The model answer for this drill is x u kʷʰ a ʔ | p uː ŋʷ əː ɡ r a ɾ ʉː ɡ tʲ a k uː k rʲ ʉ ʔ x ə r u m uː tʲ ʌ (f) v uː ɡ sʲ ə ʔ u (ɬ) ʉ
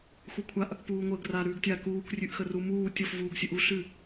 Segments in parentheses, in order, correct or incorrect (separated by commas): correct, correct